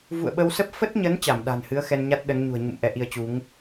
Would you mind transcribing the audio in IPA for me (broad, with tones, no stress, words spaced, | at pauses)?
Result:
vṵ˧˨ə̯ɓə˧wsə˦˥p̚ fə˦˥t̚ɲə˨˦n t͡ɕa˧˩mɗa̤˨˩nhɨ˨˦ə̯ xɛ˧nɲa˦˥t̚ɗə˨˦nɲṳ˨˩ə̯ ɲṵ˧˨m ʔɛ˧ʔi˧ə̯t͡ɕu˨˦ŋ